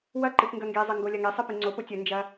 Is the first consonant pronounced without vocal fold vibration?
no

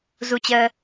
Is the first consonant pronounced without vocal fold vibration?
no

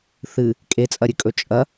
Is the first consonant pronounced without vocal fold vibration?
yes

